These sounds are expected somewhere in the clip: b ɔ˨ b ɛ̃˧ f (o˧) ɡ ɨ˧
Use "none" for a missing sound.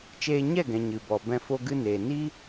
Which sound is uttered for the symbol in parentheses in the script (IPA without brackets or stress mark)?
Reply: o˧